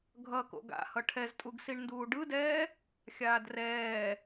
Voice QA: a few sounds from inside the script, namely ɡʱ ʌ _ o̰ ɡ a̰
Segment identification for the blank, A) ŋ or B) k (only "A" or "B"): B